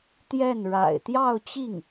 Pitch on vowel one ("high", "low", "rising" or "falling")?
falling